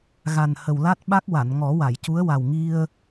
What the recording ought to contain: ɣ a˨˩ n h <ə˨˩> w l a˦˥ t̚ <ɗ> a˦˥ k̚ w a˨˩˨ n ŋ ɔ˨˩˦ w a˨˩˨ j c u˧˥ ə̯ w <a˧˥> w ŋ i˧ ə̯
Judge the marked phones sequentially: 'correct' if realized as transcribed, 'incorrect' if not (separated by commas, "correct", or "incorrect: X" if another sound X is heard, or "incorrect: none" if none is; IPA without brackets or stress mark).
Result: correct, incorrect: ɓ, incorrect: a˨˩